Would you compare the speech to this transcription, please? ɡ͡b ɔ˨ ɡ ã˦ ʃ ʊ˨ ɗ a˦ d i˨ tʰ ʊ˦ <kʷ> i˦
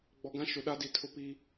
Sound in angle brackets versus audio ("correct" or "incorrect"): incorrect